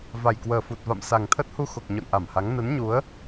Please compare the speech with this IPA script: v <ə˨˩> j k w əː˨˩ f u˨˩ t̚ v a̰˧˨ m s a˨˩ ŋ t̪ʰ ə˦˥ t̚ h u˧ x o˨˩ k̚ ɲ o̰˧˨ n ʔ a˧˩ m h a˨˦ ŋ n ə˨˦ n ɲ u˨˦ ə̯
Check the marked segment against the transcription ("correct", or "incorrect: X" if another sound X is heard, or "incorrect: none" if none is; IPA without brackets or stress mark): incorrect: a˨˩